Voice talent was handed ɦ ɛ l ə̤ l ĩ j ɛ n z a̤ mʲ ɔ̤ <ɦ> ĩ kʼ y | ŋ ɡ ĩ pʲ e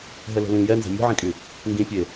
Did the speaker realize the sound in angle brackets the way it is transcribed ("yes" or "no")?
no